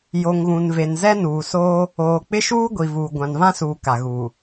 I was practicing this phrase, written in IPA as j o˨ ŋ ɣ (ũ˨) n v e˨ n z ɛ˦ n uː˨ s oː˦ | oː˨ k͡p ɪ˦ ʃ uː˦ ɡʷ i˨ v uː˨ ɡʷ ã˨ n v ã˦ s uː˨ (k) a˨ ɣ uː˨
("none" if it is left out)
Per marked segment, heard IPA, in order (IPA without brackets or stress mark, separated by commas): ũ˨, k